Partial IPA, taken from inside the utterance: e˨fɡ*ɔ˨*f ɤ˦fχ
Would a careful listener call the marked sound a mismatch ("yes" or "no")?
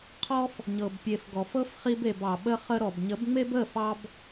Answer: no